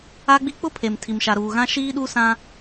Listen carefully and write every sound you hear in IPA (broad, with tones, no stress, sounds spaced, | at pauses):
a˦ ɡ͡b i˦ k͡p ʊ˦ pʰ e˨ m tʰ i˨ m ʃ a˨ ɾ uː˨ ɣ ã˦ ʃ iː˦ ɗ u˦ s ã˦